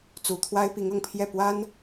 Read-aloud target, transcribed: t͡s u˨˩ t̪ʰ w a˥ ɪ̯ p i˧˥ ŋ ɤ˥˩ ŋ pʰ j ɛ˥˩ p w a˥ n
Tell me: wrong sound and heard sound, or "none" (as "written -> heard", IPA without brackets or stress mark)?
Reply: ɤ˥˩ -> ɤ˨˩